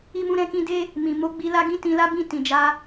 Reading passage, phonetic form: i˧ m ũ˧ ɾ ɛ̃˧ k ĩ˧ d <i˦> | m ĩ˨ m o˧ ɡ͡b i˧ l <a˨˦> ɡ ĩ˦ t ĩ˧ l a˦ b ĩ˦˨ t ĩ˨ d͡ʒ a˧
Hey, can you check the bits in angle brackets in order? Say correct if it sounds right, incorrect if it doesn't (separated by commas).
incorrect, incorrect